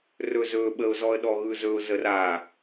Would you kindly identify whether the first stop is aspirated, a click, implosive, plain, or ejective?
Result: implosive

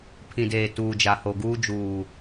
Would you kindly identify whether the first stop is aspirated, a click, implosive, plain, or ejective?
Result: aspirated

